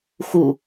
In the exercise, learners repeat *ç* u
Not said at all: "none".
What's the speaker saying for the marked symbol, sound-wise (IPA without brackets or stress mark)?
x